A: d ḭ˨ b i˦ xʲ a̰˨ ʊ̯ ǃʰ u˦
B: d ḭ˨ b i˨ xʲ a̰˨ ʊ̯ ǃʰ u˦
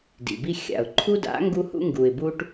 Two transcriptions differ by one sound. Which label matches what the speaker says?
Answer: A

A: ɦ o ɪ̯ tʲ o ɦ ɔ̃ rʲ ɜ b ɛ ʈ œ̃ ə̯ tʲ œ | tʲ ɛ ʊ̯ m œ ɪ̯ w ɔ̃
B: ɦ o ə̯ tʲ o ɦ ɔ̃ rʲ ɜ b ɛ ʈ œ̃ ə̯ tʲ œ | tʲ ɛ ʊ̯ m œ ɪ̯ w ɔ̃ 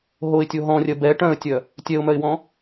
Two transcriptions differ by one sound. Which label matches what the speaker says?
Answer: A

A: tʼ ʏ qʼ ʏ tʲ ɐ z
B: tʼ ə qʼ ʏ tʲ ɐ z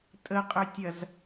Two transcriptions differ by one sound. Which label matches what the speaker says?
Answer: B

